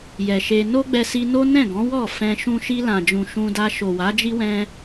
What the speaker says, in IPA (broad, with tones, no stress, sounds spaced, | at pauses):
j ɛ˨ ʃ e˧ n o˦ ɡ͡b ɛ˧ s i˧ n o˦ n ɛ̃˦˨ ɡ ɔ̃˨˦ w ɔ˦˨ f ɛ̃˧ ʃ ũ˦ ʃ i˧ l ã˨ d͡ʒ ũ˨ ʃ ũ˧ d a˧ ʃ o˨ w a˨˦ d͡ʒ i˦ w ɛ̃˦